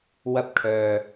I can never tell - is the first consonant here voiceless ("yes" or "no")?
no